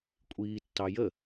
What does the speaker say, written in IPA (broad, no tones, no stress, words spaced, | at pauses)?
kʷʼiːtːɑjə